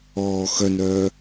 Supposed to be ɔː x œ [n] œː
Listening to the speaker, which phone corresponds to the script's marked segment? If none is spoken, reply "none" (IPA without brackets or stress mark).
n